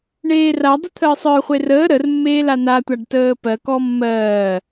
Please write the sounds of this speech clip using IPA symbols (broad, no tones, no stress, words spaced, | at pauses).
ɳeːradˤə t̪ʰəːsˤə˞χʷe rəː ɾərmːeː lanatʷaɖ təːpɜkɔ mːɜː